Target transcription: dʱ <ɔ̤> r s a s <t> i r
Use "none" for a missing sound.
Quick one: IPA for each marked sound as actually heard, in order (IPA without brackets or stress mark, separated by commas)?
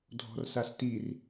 ɔ̤, t